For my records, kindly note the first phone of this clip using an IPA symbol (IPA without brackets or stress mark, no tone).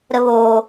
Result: ɾ